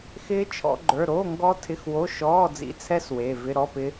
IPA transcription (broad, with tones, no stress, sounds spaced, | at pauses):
x ɪː˦˥ t͡ʃʰ ɔ̰˦˥ ɡ͡ǃ ə˞˧˥˧ ɾ oː˧˥˧ ŋ ɡ ɔ˦˥ tʰ ɪ˧˥˧ x w o˧˥˧ ʃ ɔː˧˥˧ d͡z ḭ˧˥˧ t͡sʰ ɛ˦˥ s w e˧˥˧ v ɪ˧˥˧ ɾ ɔ˧˥˧ p ɪ˦˥